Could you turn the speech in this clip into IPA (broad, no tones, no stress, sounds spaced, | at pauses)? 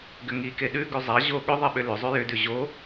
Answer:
ɡ ʏ ŋ i k e ɗ ʉ ɡ ʉ zˤ a ʑ o ɠ ʏ ðˤ e ɓ ʏ l ʏ zˤ ʉ j ʏ d ʉ ʑ o